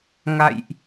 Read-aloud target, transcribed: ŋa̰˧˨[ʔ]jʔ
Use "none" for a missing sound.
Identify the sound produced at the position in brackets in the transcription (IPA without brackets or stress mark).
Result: none